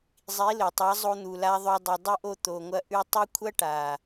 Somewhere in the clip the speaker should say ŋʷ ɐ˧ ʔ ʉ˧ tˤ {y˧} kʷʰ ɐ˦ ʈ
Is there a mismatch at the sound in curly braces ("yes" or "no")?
yes